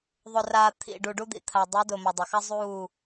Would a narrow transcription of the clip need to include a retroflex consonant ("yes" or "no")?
yes